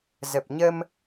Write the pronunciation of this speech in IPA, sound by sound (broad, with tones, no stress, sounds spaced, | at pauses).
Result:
z ə˨˩ p̚ ɲ ə˧ m